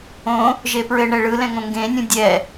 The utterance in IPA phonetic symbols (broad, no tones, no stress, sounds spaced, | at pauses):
õ | ʒ e p ɹ ɘ ɳ ɛ ɭ ɯ l ɛ̃ ŋ õ ŋ ɡ ẽ nʲ ũ dʲ ɛ